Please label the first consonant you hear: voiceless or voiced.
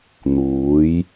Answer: voiced